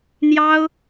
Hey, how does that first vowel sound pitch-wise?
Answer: high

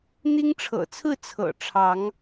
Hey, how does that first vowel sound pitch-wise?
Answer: high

